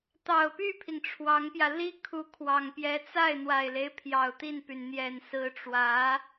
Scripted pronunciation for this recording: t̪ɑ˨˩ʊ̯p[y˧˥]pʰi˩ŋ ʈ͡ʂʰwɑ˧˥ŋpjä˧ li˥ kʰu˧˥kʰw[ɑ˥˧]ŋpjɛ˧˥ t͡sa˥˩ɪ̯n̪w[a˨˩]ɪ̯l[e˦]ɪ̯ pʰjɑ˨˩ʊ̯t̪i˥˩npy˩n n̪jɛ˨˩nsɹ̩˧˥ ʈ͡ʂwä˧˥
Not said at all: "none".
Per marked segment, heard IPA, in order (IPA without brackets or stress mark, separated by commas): y˥˩, ɑ˨˩, a˨˩, e˦